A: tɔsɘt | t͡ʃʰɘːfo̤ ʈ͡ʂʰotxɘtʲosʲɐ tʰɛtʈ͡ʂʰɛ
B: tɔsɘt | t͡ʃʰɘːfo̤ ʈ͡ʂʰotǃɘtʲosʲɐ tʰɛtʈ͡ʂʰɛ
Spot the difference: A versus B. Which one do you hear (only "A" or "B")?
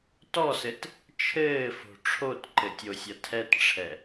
B